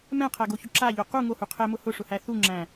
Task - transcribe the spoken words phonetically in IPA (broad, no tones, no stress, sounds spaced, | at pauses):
m ɛ̃ qʰ æ ɡ o ç ʊ ǁ a ʎ o q u ŋ o h u qʰ ɛ m ʊ h ʊ ʂ ʊ h æ θ u ŋ͡ǁ æ̃